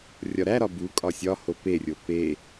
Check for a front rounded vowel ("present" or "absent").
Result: absent